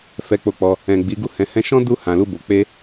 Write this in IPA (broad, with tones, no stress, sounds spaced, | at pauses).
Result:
f ɛ˧ k͡p o˧ k͡p ɔ˧ | ɛ̃˨ ɡ͡b i˨˦ ɡ u˦ h ɛ̃˧ h ɛ̃˦ ʃ ɔ̃˦ d u˦ h ã˧ l u˦ b o˧ k͡p e˧